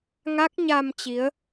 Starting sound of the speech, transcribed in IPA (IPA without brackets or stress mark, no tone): ŋ